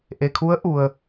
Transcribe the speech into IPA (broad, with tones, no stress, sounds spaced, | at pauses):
ʔ e˩ kʰ u˧˥ ə̯ ʔ u˩ ə̯